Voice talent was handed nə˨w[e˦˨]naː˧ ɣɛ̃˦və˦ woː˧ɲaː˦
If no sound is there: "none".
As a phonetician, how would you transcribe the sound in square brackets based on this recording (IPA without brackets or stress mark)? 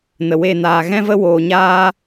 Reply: e˦˨